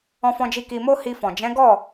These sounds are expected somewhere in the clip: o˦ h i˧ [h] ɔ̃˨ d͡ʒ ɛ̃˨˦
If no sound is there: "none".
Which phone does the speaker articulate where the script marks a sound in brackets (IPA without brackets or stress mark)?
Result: f